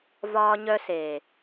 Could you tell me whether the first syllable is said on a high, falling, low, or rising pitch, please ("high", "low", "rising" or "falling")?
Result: high